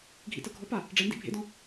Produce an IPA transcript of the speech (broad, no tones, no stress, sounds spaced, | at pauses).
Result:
ɡʱ ḭ t ɤ ɡʱ ɔ p a | ɖ͡ʐ e n d ḭ bʱ ḛ d ɔ̃